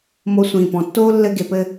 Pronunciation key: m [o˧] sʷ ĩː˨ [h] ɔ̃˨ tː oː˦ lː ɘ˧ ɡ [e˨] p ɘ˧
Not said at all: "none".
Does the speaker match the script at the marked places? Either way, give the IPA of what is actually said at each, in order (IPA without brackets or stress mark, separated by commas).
o˧, p, e˨